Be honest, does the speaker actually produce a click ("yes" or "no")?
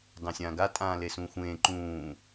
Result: yes